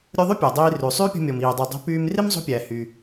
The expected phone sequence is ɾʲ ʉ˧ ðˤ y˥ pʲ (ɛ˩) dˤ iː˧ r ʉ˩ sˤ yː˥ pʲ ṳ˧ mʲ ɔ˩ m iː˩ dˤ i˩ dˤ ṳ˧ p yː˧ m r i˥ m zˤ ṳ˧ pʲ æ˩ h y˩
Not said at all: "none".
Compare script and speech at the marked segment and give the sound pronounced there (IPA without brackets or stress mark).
ɛ˩